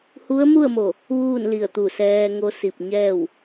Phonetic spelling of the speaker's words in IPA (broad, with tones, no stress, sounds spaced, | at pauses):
h u˧˥ ə̯ m u˥˨ ə̯ m o˧˩ | ʋ uː˥˨ n l i˧˩ ə̯ t̪ u˧˩ s ɛː˧ ŋ o˧˥ s i˧˩ p̚ ɲ ɛː˥˨ w